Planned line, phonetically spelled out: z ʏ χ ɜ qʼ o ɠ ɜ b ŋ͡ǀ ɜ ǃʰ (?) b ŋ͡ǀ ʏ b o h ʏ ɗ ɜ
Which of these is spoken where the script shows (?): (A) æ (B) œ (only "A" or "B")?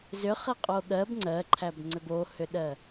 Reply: A